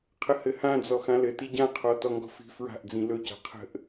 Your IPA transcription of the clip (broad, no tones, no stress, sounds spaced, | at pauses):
qʰ ə h ɘ h ã d͡z ɔ x ã l ɘ t i ɟ ã qʰ ɔ t ɔ ŋ ɡ ɔ̤ f i̤ f ɹ a̤ ʔ d͡z ĩ l ɵ c a̤ qʰ ə̤ ʔ